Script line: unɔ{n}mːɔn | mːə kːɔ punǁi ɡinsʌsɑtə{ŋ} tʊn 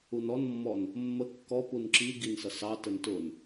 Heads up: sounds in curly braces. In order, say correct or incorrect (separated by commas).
correct, incorrect